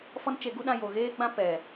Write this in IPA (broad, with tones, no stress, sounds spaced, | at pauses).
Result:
f ɔ˦ n t͡ʃ e˧ ɡ u˦ ɗ ã˧ j o˨ ɣ eː˦ ɡ͡b ã˦ p ɛ˨